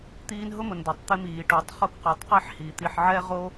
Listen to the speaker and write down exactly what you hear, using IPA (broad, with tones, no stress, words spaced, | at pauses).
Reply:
t̪iː˦nɦʊ˥mʊ˨ndo˩tˤ t̪ɪ˦miː˩ ʈu˨tˤχo˥k qu˩tˤqi˦ħhi˩ t̪i˨ħʕɛ˥ ʁo˥